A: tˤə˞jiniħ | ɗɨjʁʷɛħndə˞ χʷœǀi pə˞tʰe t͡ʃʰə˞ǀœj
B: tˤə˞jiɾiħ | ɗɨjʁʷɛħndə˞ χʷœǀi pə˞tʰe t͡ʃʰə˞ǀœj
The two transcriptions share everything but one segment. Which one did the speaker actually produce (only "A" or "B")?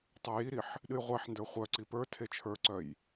B